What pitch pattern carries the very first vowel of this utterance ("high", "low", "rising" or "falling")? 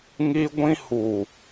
high